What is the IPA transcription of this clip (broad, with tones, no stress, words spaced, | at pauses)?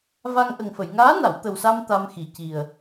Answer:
va˧ŋʔə˨˩ŋfə˨˩˨j ŋaː˧˥na˨˩˨wt̪ə˨˩wsa˧m t̪a˧mxi˨˩ ci˨˩ə̯